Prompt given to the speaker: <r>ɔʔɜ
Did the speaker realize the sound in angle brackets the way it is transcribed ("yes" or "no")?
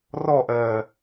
yes